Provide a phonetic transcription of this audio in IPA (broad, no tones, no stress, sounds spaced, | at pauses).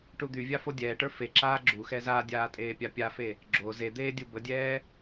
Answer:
ʈ u d̪ y vʲ a f o dʲ ɛː ʈ ə˞ f e ǁ aː ɡ͡ǁ u x ɛ z a dʲ aː tʼ eː pʲ a pʲ a f e | ɡ͡ǁ o z e d̪ eː dʲ u b ə dʲ ɛː